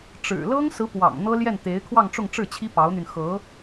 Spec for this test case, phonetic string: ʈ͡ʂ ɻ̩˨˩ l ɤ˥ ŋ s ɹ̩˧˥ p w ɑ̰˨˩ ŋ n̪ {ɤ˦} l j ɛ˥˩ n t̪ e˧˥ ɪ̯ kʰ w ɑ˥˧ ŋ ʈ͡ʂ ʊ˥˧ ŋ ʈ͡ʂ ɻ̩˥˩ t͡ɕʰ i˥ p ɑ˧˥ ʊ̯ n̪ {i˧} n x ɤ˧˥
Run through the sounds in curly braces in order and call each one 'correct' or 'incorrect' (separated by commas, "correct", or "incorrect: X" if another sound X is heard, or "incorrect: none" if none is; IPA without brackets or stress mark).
incorrect: ɤ˥, incorrect: y˧